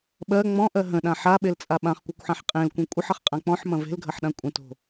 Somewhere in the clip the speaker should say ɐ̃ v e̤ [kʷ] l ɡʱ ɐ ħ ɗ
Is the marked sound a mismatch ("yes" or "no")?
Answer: yes